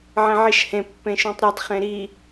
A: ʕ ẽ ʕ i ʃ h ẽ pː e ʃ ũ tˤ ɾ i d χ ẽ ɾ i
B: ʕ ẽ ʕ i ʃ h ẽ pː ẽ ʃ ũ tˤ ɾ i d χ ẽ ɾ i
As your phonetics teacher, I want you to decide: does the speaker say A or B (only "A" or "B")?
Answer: B